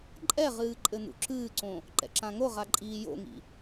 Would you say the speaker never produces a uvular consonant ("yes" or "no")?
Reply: no